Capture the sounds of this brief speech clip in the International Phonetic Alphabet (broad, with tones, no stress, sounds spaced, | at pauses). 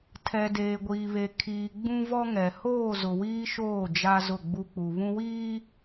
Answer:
tʰ ɛ˨ d eː˨ ɡʷ iː˨ β e˨ kʰ iː˨ ɡ͡b ũ˦ v ɔ˦ ŋ ɛ˨ h oː˦˨ z ʊ˨ w iː˦ ʃ oː˦˨ d͡ʒ a˦ z ʊ˦˨ ɡ͡b u˦ k͡p u˨ β ũ˦ w iː˦